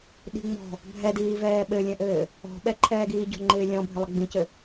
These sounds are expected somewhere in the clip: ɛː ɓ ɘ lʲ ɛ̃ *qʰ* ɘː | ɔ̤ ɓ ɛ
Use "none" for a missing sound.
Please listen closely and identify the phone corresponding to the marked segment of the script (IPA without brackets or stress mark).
ʔ